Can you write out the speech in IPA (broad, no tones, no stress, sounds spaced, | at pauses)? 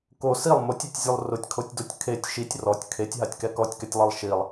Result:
k o s i lˠ m o tʲ e tʲ zʲ u lˠ r ʊ tʲ kʰ o tʲ d o tʲ kʰ e tʲ ʃ i tʲ r ɔ tʲ kʰ e tʲ ɦ a tʲ k ɛ k ɔ tʲ k ɛ tʲ lˠ i lˠ ʃ i lˠ